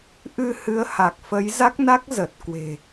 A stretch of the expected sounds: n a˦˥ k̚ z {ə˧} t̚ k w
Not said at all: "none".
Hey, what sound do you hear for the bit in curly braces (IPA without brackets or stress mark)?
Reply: ə˨˩